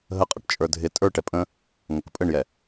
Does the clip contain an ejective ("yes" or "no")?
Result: yes